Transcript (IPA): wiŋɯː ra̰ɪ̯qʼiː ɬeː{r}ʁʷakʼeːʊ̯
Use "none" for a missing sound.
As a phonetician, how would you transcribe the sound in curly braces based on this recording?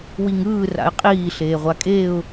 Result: none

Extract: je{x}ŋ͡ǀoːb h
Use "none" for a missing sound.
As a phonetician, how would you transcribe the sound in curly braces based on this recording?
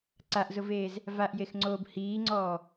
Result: x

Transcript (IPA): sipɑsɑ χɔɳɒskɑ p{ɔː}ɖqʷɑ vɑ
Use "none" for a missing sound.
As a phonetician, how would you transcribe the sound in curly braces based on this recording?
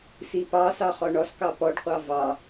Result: ɔ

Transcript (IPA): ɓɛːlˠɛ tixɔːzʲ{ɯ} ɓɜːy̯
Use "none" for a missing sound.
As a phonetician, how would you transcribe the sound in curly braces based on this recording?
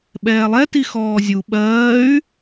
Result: u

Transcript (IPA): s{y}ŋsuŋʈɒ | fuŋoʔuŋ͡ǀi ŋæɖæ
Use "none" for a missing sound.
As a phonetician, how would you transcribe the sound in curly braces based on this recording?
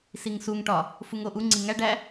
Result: i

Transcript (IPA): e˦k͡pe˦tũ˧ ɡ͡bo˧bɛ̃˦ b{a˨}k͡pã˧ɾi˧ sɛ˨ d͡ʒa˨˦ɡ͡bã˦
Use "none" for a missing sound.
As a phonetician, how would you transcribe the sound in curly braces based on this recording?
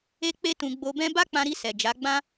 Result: a˦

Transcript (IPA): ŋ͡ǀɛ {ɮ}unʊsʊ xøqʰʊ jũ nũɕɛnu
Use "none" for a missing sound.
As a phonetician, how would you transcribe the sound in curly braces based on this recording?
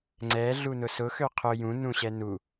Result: ɮ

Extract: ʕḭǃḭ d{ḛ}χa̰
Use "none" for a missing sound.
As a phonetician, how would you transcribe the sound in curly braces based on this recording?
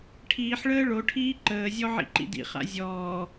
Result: ḭ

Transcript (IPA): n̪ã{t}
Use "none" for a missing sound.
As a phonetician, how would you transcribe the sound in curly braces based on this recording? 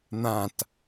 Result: t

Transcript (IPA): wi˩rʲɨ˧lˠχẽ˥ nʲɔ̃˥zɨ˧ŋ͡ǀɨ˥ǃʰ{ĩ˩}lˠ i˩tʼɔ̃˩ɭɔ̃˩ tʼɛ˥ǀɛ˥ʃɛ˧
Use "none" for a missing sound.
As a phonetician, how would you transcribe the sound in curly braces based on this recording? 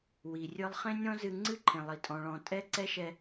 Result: ẽ˩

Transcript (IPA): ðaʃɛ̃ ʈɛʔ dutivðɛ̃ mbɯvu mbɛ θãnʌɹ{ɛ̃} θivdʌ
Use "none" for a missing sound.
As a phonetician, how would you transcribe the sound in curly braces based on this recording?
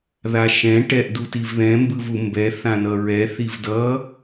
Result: ɛ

